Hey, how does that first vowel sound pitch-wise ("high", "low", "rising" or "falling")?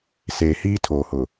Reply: low